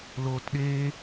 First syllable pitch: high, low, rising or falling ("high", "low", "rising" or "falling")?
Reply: low